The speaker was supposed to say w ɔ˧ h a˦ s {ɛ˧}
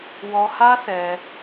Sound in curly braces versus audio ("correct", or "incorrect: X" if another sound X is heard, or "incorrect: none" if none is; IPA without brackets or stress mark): correct